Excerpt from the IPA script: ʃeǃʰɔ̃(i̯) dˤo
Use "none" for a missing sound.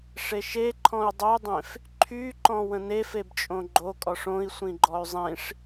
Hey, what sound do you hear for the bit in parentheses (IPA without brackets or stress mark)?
y̯